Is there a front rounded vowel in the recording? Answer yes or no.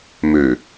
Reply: yes